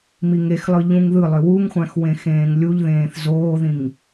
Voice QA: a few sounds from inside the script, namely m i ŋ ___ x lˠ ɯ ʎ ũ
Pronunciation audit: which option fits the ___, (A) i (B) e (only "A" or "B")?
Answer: B